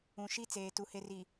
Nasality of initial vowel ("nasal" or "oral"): nasal